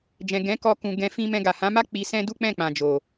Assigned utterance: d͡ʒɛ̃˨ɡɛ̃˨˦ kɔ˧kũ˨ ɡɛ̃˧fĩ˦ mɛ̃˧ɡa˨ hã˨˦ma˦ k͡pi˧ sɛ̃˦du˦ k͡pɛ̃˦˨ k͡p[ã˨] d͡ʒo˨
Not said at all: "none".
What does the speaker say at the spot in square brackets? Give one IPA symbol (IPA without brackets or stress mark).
ã˨